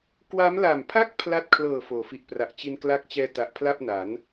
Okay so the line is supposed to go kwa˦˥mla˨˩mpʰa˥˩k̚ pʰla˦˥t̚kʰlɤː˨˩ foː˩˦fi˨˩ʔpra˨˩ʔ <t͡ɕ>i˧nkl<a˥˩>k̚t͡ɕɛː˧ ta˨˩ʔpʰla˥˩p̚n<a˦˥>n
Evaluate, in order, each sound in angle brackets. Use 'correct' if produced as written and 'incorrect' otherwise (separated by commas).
correct, incorrect, incorrect